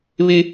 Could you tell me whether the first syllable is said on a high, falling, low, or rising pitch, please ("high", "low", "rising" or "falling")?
high